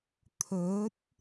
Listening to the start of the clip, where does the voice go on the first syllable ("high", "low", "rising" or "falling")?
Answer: rising